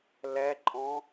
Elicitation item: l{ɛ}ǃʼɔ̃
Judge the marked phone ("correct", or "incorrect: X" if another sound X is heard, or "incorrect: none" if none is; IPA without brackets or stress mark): correct